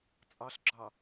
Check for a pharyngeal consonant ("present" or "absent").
absent